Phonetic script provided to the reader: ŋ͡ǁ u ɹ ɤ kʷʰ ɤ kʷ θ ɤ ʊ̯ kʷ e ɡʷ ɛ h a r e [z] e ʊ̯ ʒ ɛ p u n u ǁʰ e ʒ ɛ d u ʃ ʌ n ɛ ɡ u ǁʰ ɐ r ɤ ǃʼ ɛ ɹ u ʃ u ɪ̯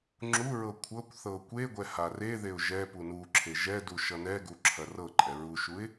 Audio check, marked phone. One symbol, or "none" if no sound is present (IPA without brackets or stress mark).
ð